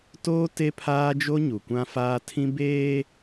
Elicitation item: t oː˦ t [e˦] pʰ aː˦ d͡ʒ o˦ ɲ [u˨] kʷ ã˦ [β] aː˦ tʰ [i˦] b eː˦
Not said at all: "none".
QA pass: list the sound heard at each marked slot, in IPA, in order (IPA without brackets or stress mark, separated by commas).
e˦, u˨, f, ĩ˦